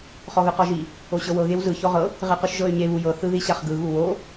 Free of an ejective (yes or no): yes